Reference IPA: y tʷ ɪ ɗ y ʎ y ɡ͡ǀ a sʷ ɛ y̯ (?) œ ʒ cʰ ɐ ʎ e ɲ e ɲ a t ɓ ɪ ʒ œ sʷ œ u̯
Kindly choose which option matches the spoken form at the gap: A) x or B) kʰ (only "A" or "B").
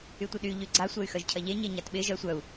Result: A